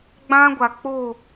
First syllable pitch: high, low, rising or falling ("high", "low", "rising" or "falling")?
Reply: high